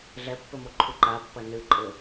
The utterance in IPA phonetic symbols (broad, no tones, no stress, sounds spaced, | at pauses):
ɮ ɛ pː ɘ m o ǃʰ u ǃ a pː ɐ n ɨ ǃʼ ɘ